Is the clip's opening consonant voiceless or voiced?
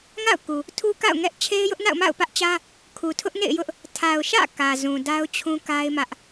voiced